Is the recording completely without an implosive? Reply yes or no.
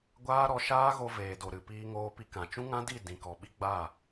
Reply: no